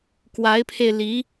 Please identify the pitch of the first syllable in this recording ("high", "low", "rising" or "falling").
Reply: rising